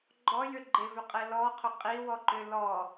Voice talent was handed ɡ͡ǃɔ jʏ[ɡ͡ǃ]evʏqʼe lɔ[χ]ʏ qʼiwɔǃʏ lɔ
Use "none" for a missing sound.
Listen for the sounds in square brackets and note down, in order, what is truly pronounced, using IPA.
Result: ɡ͡ǃ, qʰ

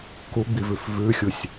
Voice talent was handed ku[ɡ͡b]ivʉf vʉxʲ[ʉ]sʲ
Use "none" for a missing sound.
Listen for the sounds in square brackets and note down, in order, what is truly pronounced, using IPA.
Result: ɡ͡b, u

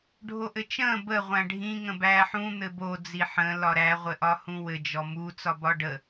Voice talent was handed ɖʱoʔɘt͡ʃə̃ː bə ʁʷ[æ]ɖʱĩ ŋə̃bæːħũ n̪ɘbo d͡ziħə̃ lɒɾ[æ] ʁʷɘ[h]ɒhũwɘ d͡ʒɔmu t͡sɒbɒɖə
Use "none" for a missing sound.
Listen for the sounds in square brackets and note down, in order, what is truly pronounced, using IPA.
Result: æ̃, æ, ʔ

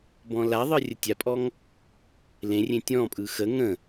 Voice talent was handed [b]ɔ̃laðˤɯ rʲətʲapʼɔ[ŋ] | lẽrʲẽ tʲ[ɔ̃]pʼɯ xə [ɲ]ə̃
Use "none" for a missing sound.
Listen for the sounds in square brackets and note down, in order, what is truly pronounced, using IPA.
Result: b, ŋ, ɔ̃, ŋ

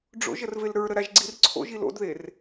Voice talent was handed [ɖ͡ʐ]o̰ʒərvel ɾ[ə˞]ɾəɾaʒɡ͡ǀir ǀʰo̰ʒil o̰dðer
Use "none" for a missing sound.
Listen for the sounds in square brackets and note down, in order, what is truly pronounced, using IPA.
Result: ɖ͡ʐ, ə˞

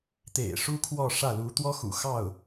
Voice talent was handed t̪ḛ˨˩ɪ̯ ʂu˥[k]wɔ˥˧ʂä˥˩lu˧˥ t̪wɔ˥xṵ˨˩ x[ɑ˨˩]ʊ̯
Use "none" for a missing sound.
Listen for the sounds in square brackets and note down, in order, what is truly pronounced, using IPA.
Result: kʰ, ɑ˥˩

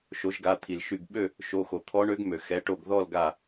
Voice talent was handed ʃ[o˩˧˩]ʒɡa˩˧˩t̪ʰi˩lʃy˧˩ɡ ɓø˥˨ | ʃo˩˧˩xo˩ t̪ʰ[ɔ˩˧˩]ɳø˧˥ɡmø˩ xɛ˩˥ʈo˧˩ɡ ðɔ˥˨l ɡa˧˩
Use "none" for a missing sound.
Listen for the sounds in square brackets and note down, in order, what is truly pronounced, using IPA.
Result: o˩˥, ɔ˧˥

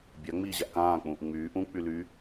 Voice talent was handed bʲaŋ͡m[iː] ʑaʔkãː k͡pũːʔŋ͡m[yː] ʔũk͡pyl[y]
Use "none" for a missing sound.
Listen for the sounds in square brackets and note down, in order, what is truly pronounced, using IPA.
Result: iː, yː, y

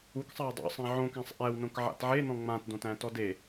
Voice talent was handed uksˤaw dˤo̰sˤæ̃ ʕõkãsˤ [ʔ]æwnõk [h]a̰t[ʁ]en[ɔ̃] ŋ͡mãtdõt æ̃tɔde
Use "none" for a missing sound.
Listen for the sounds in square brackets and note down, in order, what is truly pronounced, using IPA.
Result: ʔ, ʕ, ʕ, ɔ̃

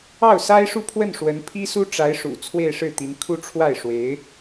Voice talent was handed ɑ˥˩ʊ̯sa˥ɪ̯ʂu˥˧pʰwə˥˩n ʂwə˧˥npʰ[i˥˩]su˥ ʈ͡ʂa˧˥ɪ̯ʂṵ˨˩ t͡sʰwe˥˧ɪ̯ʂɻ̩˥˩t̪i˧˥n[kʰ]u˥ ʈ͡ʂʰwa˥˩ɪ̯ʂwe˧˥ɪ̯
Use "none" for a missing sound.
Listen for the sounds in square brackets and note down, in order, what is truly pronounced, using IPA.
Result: i˥, kʰ

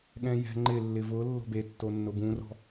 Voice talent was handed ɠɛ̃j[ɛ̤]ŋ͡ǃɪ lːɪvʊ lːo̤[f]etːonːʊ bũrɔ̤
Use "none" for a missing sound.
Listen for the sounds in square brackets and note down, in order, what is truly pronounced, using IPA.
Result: ɛ̤, b

